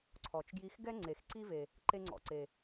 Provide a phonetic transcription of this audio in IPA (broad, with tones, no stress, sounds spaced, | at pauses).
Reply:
ǀʰ ɔ˩ t͡ʃ ɡ j i˧ x ɡ ɛ˥ ŋ͡ǀ e˩ x ǀ i˥ v e˩ | ǃ e˧ ŋ͡ǀ ɔ̰˩ ǀ e˩